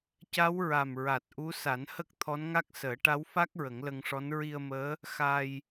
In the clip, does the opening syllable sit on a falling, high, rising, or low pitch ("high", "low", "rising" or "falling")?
rising